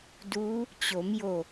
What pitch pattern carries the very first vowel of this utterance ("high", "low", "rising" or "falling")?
rising